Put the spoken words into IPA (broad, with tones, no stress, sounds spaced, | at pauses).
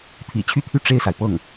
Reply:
t̪ʰ ḭ˨˩ t͡ɕʰ y˥˧ t̪ʰ y˥˧ ʈ͡ʂ e˥˩ ɪ̯ s a˩ ɪ̯ p ɤ˥˩ ŋ